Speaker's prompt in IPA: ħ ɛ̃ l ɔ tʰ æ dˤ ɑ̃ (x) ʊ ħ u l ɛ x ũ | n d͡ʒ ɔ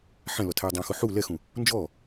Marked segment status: correct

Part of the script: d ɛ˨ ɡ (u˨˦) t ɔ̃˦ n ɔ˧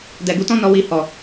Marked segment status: correct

